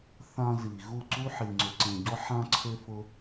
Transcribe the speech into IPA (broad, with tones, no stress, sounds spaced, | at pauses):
θ ã˧ z i˨ ɣ u˦˨ ǀ u˦ ħ i˧ ŋ͡ǀ ʏ˧ ǀ ẽ˧ ɟ ɔ˦ ħ ã˦ ǀʰ ʏ˦ f ʊ˦